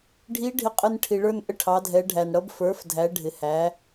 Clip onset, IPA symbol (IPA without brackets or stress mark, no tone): ɖʱ